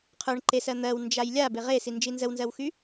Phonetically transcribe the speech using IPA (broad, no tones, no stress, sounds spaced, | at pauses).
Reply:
qʰ ə˞ ɳ ǃ e s ɜ n̪ ɜ w n d͡ʒ a j lʲ a b e ʁ e s i n d͡ʒ i n z ə w n z ɜ w x y